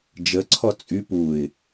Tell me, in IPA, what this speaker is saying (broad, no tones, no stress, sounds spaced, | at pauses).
d͡ʒ ə ǀʰ ɔ t͡sʼ y p u ɪ̯